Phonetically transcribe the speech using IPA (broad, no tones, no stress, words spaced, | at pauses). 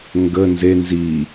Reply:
ŋɡə nze nzi